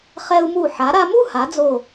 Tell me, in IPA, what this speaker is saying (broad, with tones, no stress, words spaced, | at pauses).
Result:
χɛ˧u̯mu˧˩ ħa˩˧ɾa˧mu˥˧ha˩˧ d͡zo˧˩